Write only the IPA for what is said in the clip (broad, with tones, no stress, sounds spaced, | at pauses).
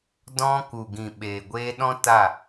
d ɔ̃˦ k u˨ ɡ ĩ˨ ɓ eː˨ ɡʷ eː˧ ɗ ɔ̃˦ t a˦˨